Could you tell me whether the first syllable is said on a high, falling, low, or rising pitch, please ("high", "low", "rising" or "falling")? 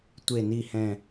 falling